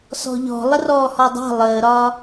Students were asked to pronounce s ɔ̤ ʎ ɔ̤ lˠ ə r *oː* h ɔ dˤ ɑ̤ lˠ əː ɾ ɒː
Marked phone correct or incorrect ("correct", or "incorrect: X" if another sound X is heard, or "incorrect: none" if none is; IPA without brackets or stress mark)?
incorrect: ɔː